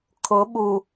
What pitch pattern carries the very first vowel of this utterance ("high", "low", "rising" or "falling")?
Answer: rising